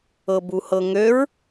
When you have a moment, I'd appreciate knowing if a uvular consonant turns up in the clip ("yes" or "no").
no